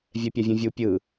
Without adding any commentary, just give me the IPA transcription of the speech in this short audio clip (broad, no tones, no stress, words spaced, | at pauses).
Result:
vʲɛpʲavʲũvʲu pʲɯ